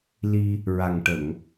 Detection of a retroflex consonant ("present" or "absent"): present